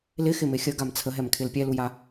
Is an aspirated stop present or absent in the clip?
present